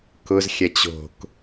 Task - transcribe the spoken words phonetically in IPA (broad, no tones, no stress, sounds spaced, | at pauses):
k ʊ z xʲ ɐ t͡ɕ o̤ k